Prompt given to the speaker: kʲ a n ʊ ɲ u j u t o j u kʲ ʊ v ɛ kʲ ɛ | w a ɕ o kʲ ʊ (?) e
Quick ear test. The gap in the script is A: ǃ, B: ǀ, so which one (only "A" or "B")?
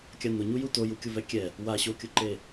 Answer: A